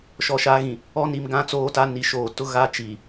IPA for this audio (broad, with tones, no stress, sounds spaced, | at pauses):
ʃ ɔ˨ ʃ a˨˦ ɣ ĩ˨ | ɔ˦ n i˨ m ɡ ã˦ t͡s oː˦ t a˦ n i˨ ʃ oː˨ t ʊ˦ ɣ a˦ t͡ʃ iː˨